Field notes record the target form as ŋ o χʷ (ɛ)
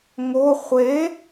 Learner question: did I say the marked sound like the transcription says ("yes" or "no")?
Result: no